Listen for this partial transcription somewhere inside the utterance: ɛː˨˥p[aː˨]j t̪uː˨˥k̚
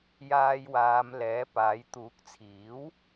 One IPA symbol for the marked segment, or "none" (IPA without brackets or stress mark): aː˨˥